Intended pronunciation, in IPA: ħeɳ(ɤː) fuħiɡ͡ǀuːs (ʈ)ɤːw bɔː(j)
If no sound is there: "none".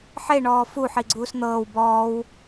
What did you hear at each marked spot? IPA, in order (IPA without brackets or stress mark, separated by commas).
ɔː, n̪, w